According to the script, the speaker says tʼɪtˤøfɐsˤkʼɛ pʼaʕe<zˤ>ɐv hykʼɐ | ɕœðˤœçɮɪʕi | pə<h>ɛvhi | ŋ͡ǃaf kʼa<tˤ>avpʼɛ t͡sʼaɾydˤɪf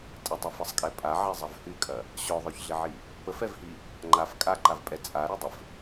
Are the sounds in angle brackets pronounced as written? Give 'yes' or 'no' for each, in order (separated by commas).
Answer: yes, no, no